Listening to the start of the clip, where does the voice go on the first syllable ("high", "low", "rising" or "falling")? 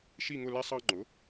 falling